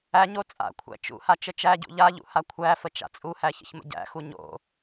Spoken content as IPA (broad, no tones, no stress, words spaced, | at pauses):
æɲo t͡sʼa̰kʷʰæ̰ t͡ʃṵha t͡ʃət͡ʃæɟṵ ʎaʎṵ hakʷʰæfə t͡ʃa̰t͡sʼuhæ çə̰çmə̰ɟæ̰xu ɲo̰